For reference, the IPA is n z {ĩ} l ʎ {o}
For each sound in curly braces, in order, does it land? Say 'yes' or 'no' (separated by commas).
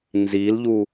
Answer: no, no